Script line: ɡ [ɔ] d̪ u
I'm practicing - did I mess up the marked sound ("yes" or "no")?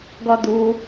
no